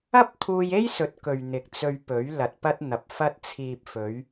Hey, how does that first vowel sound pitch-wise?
high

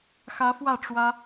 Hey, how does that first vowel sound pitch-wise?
rising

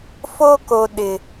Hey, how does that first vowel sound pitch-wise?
high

